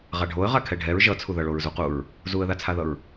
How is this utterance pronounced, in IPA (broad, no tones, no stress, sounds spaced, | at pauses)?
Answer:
ʁ a ɖʱ o ə̯ ʁ a kʰ ɛ ɖʱ ɛ ɹ ʒ ʌ t͡sʰ u ð ʌ ɭ o ɹ z u q u ɹ | z u ə̯ ð a t͡sʰ a ð ʌ ɹ